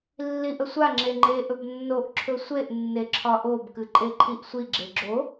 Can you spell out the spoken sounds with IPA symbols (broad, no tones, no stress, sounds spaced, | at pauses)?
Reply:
lː i ʔ ə sʷ a ŋ͡ǁ e ŋ͡ǃ e ʔ ɵ b nː o ʔ ǁʰ ɵ sʷ e ʔ nː e ǁʰ ɒ ʔ o b k ɨ ǃʼ e ǃʰ i ʔ sʷ i ɡ͡ǁ e ɡ͡ǁ o